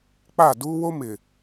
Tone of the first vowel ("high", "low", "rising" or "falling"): falling